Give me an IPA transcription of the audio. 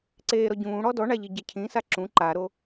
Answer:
ǀ eː ɾ ɔ ɟ ũː ɽ ɔ d ɔ ɳ a ʎ i ɟ ɛ cʰ ĩ s a ǁ ũ ǃ a ɾ o

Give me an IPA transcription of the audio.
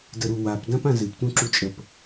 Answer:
d ə ɾ u w a p d ã p ã z ɨ p t ũ ǁ u t͡ʃʼ ə p

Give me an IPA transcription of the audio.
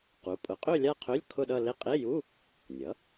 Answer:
q u˩˥ pʼ ʊ˩˥ qʼ ø˥˧ lʲ a˥˧ qʰ ø˧˥˧ lʲ kʰ ʊ˥˧ ɗ ʌ˥˧ l e˥˧ qʼ e˧˥˧ j u˧˥˧ | nʲ ʌ˩˥

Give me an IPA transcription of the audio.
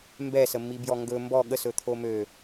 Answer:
m b ɛ s ə mː i b j ɔ ŋ ɡ ɵ m b ɔ ɠ ə s ɵ t̪ʰ o m ø

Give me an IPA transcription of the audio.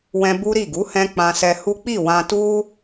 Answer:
w ɛ̃˧ b u˦ ɾ i˦˨ ɡ u˨˦ h ɛ̃˧ k͡p ã˧ s ɛ˧ h u˦ k͡p i˦˨ w ã˧ t u˦

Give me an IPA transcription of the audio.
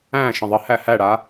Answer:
æ̃ ʃ ə̃ ðˤ ə h æ h æ ɽ a

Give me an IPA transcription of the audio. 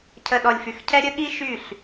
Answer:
cʰ ə˨ ɗ ɔ˨ lʲ f y˨ x cʰ ɛ˦ ɾʲ ə˦ ɠ i˦ ʃ y˦˨ ɬ

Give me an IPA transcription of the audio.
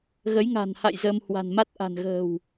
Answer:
ɣ ə˨˦ j ŋ a̤˨˩ n h a̰˧˨ j z ə˧ m h w a̤˨˩ n m a˦˥ t̚ ʔ a̤˨˩ n ɣ ə̤ː˨˩ w

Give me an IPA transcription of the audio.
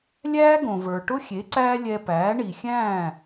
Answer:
lʲ æː˥ ɡ õ˩ v ə˞˩ ʈ ʊ˥ xʲ e˩˥ ǀ æː˥ lʲ ɛ˧ p æː˩˥ ɳ i˩ xʲ æ̃ː˥˩

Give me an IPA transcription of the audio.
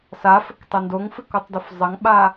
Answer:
s a f ɘ k tˤ ɛ n d o ŋ f ɨ k o tˤ d o f zˤ ɐ ŋ ɓ a

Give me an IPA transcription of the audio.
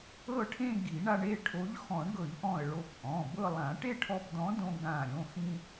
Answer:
ɤ˥˧ ʈʰ ẽ˥˧ ɡ i˨˩˦ ɳ a˧ ɳ e˩˧˩ ʈʰ o˨˥ ʎ x ɔ̃˨˩˦ ɳ ɡ ɤ˨˩˦ ʎ ʔ ɔ̃˧˩ ə̯ ɭ o˧˩ p ʔ ɔ̃˩˧˩ b ɤ˥˧ lˠ ã˨˩˦ ʈ e˥˧ ʈʰ ɔ˧ p d̪ ɔ̃˨˥ d õ˧ ɡ ã˧˩ ɾʲ õ˩˧˩ x ĩ˧

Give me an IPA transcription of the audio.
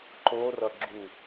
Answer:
ǃ o r ʌ ɡ͡ǁ u

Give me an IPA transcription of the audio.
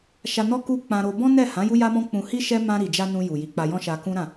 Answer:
ʃ a˧ n ɔ˦ k u˦ k͡p ã˧ ɾ o˧ b ɔ̃˦ n ɛ˦˨ h ã˨˦ j u˦ j a˦ m ɔ̃˦ k͡p ũ˧ h i˦ ʃ ɛ˦ m ã˧ ɾ i˨ d͡ʒ a˧ n ũ˧ j u˨ j i˨˦ k͡p a˧ j ɔ̃˦ ʃ a˧ k ũ˦ ɾ ã˦˨

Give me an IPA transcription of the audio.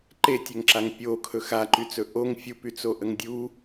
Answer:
ǃ e tʲ ɘ ŋ ǁ a ŋ pʲ o kʰ ɵ x a ǃ y t͡s ɵ ʔ o ŋ fʲ u p y t͡s o ʔ ə ŋ dʲ u

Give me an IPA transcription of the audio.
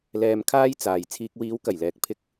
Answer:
l ɛː˧ m kʰ aː˥ j t͡s aː˨ j t͡sʰ iː˨ k̚ w iː˨˧ w k ɐ˨˩ j l ɛː˨ k̚ pʰ ɪ˧ k̚

